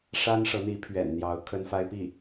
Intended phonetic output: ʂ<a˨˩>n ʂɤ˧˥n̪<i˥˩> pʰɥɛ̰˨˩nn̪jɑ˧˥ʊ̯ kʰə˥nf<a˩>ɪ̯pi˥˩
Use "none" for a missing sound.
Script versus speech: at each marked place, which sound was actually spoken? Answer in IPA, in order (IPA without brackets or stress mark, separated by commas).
a˥, i˧˥, a˥